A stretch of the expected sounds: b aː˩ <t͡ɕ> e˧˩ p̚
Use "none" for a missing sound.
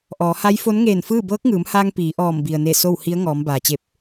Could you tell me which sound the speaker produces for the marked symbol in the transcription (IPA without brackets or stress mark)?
t͡ɕ